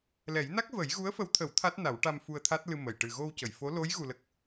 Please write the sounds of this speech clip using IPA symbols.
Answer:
lɛ˨˩˦jna˦˥k̚ və˨˩˦jɣu˧˥ə̯fə˧˥wt̪ʰə˨˩˦w t̪ʰa˦˥t̚na˨˩˦wʈa˧m fu˧ə̯t̪ʰa˦˥t̚lɨ˧ mə˨˩˨j ʈɨ˨˩ɣo˧wcə˨˩˨jfo˧˥ lo˧˥j ɣu˧lə˦˥k̚

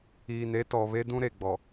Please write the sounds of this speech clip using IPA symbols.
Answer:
iː˨ne˦ tɔ˨βe˦ dũ˦ɾe˨ɡ͡bɔ˨

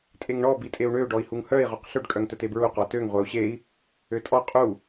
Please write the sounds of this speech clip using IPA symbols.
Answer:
tʼeŋɳɔ bitʼeu̯ɳø ɖɔi̯huŋhœi̯ ʁoqɬøɖ kʼœŋtœtebɹu qɔtøŋ ʁʷɛu̯ɕei̯ | øtʼɔ qʼu

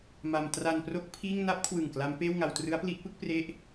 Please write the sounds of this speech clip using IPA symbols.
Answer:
ma˧m tra˧npro˦˥k̚ pʰiː˥˩ŋ na˦˥p̚kʰwɯ˨˩ŋ kla˦˥mpeː˥˩wŋa˧w trɯ˦˥a̯pli˦˥ʔpɯ˦˥k̚ pre˦˥ʔ

